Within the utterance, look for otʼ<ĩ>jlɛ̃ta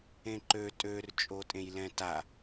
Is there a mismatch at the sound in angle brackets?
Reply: yes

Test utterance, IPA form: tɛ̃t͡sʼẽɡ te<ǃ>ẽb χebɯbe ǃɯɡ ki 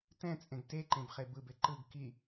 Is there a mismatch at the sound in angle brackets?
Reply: no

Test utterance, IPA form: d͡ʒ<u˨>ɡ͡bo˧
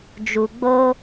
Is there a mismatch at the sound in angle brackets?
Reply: no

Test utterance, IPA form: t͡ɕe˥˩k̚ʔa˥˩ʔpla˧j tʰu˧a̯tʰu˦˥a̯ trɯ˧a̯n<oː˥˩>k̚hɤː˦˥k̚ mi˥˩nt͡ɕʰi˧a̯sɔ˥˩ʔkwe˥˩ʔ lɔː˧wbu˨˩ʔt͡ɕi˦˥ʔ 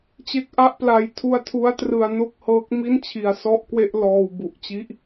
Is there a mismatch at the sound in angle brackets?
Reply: yes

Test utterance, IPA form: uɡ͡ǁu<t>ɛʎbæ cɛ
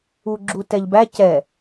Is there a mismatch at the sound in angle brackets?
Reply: no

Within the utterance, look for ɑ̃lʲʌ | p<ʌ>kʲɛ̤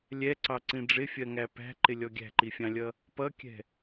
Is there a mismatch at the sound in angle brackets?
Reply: no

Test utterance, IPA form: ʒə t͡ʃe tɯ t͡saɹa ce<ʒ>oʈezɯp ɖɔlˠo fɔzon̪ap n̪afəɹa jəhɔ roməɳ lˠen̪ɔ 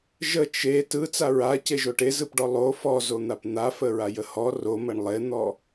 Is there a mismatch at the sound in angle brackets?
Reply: no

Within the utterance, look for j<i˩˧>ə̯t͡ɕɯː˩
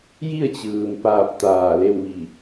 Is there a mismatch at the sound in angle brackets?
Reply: yes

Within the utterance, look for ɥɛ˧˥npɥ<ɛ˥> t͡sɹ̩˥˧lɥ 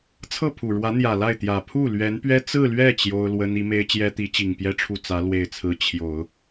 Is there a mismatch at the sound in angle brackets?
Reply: no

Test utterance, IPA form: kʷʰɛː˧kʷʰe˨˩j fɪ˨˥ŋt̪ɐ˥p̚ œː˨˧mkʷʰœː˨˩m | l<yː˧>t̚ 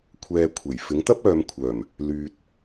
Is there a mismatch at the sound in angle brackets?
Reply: no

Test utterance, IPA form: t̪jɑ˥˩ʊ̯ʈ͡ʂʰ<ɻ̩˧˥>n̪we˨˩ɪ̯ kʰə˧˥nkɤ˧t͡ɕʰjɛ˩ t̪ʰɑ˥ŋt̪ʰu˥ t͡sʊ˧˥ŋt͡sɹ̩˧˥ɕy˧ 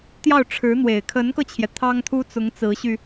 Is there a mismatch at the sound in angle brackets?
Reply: no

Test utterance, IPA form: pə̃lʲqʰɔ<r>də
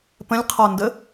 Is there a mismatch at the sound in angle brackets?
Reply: yes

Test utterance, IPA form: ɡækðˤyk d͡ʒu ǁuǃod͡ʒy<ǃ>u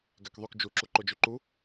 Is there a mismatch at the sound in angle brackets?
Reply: no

